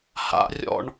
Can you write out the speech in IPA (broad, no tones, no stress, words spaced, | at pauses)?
ha̰rʲɔ̰ɳ